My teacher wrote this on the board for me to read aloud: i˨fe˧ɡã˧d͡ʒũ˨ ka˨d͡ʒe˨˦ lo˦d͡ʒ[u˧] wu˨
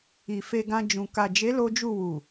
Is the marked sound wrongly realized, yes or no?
yes